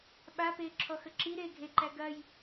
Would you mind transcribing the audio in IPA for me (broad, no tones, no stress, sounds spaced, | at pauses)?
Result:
ɓ a p eː ǁʰ ɔ x ə ǁ i ɾ eː ɡʱ e ǃ æ ɡ ɐ j